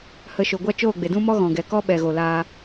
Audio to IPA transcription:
h ə˧ ʃ o˨ ɡʷ a˦ t͡ʃ oː˦˨ ɡ͡b e˨ d ũ˦ m ɔ˦ ɣ ɔ̃˨ ɡ ɛ˨ k ɔ˦ ɓ ɛ˨ ɣ o˨ l aː˧

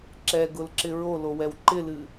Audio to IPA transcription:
ǁ ɛ ɡ ʊ l ǁ ɪ ɹ o l o w ɛ w ǃ ɪ l ɨ

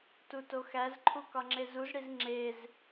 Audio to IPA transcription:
t u t o x æ z ǃʰ u k ɒ ŋ͡ǁ e z u z ɽ i z ŋ͡ǁ e z

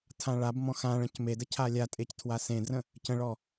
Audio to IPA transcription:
tʰ ã ɭ a b m ɔ̃ x ã ɭ ə̃ c m e d ə cʰ a lʲ a tʼ e c tʰ w a s ẽ d r ə̃ | c ə̃ ɭ ɔ

